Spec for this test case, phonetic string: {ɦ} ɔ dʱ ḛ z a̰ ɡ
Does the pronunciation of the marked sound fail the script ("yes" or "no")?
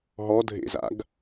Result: no